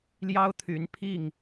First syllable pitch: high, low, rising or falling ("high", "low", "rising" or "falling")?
high